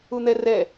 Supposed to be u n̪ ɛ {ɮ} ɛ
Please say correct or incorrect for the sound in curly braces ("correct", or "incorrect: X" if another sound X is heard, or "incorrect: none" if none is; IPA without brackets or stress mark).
incorrect: r